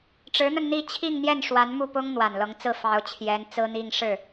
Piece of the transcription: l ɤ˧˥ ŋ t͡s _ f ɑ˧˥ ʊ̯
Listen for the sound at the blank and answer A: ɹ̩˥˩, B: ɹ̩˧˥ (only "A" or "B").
A